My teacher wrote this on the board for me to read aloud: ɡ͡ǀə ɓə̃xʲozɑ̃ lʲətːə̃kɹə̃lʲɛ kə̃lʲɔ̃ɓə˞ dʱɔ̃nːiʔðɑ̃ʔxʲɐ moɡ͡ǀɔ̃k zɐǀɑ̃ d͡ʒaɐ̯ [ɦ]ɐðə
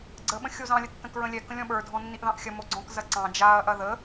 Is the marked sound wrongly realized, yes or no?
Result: yes